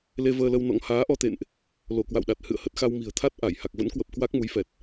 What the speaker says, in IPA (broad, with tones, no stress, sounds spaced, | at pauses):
l e˧ v əː˧ l ə˧ w n ɔ̰˧˥ ŋ h aː˨˦ ʔ ɔ˧ t̪ ḛ˧˨ n ʔ | l o˧˩ k w a̰˧˨ w ɗ a˨˩ t̚ h ɨ̰˧˨ ə̯ h ə˦˥ t̚ x a˧ w m i̤˨˩ ə̯ t̪ʰ a˦˥ t̚ ʔ a˧˩ j h a˨˩ k̚ v ə̰˧˥ n k w ə˨˩ p̚ k w a˦˥ k̚ m u˨˦ j f ɛ˨˩ t̚